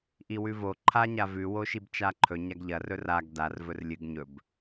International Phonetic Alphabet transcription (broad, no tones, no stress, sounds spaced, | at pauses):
ʔ i w ʉ v o ǃʰ a ɲ a v ʉ w o ʃ i b t͡ʃ a ǃʰ ɵ ɲ a ɡ ʎ ɐ r ɵ r a ɡ d a r v ɵ r lʲ ɨ ɡ ɲ ɵ b